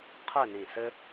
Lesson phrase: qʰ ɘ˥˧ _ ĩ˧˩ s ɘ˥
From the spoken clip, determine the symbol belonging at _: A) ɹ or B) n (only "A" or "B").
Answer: B